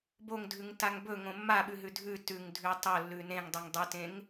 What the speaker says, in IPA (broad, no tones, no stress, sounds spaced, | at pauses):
b o ŋ dʱ ʉ ŋ t a ŋ b ɵ ŋ õ mː a ɓ ʉ ɦ ʉ dʱ ʉ t ʉ ŋ dʱ ʉ tˤ o lː ʉ n ẽ ŋ dˤ ʉ ŋ dˤ ɵ t ẽ ŋ